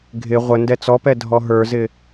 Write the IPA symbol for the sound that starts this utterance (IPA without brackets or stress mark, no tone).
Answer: ɡʱ